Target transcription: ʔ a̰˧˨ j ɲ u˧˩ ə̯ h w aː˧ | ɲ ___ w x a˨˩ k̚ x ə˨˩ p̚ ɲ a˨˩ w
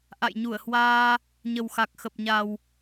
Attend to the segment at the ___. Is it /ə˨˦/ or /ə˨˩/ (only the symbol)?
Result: ə˨˩